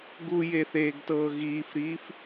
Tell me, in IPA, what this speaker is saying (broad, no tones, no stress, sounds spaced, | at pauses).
ɡ u j e θ eː ɡ t ɤː ɣ iː f ɾ iː f